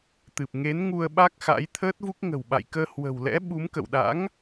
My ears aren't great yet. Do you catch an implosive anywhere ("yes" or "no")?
yes